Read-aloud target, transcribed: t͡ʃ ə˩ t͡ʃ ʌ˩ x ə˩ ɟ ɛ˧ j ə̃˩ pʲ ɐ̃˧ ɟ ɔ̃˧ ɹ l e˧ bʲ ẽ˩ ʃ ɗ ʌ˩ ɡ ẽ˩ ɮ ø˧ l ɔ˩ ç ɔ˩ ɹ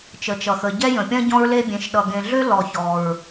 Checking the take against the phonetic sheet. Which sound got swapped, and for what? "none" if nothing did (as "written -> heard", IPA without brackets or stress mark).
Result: none